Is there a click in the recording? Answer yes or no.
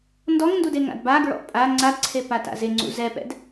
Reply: yes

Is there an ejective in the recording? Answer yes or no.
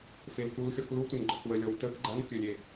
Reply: no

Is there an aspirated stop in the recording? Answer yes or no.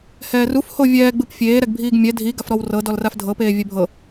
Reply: no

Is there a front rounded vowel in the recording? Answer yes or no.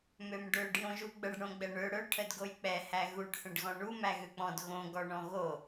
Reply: yes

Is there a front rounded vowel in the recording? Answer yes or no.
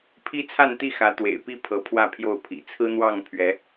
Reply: no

